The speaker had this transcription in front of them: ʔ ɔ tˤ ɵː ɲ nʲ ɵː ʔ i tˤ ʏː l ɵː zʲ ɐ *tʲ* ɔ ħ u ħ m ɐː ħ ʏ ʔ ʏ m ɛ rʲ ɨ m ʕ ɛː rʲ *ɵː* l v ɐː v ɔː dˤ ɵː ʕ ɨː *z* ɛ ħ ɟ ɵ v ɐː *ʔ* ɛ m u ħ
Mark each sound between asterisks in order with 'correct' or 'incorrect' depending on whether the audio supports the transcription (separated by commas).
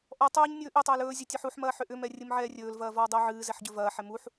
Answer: correct, correct, correct, incorrect